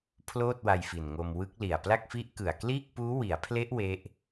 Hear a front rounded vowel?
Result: no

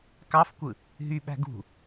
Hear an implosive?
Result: yes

